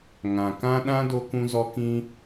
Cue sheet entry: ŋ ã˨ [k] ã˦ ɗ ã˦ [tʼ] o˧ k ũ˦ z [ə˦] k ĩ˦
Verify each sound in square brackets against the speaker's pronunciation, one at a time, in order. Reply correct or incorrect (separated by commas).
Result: correct, incorrect, incorrect